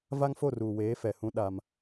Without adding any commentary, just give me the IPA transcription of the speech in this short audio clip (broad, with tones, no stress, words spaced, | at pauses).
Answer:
va˦ŋ fo˦˨ruː˨weː˨˦fɛ˨ hũ˦ ɗa˦m